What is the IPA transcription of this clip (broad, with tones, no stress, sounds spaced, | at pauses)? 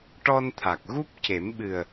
ʈ ɔ˧ n t̪ʰ a˨˩ k̚ ɣ u˦˥ p̚ c e˨˩˦ m ɓ ɨ˨˩ ə̯